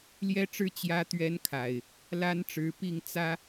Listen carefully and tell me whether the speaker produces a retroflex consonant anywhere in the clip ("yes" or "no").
yes